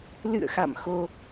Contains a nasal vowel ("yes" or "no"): no